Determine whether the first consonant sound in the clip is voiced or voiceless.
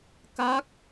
voiceless